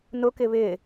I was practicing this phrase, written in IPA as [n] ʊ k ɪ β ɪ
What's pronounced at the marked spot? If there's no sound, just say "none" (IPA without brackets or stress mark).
n